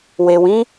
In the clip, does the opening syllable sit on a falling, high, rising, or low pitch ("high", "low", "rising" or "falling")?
low